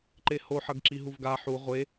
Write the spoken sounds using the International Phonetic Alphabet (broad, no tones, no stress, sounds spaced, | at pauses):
ǃ e h o ħ ʌ ɡ ǁ i ɦ u v ɡ a ħ u ʁʷ e